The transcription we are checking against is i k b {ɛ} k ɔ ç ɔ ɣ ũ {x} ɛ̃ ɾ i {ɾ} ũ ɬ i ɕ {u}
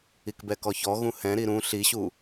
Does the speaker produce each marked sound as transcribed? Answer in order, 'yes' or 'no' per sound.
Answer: yes, no, yes, yes

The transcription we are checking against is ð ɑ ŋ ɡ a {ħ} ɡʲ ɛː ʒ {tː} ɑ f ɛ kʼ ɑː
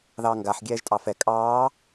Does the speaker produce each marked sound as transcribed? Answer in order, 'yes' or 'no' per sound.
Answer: yes, no

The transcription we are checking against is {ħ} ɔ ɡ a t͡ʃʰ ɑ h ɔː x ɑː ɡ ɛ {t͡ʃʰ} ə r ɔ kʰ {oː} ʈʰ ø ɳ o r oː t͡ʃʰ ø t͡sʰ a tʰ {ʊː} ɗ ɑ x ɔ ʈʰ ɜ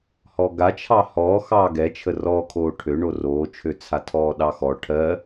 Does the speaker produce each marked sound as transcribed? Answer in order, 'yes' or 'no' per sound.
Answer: no, yes, yes, no

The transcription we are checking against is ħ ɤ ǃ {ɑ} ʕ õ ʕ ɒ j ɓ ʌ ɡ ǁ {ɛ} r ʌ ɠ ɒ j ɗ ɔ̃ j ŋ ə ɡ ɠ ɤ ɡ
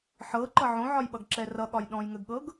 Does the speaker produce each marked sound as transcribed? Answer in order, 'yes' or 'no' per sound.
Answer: no, yes

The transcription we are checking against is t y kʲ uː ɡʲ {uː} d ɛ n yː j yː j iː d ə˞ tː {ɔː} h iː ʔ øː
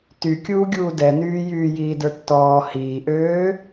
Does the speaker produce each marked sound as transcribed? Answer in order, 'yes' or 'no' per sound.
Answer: yes, yes

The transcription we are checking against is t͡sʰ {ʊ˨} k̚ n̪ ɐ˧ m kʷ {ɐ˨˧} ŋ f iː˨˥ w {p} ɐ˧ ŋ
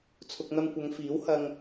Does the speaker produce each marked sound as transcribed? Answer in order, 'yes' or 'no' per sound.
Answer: yes, yes, no

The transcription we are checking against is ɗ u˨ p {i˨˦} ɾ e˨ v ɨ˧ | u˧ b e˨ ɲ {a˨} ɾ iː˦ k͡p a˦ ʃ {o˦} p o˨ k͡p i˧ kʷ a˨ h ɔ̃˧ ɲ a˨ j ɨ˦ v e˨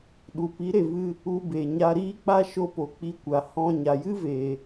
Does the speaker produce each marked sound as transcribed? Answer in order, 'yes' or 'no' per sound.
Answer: yes, no, yes

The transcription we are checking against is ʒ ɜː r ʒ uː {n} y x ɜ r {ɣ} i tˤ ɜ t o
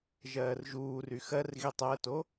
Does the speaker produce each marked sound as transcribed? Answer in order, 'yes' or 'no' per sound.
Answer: no, yes

